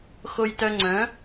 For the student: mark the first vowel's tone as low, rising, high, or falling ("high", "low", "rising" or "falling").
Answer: high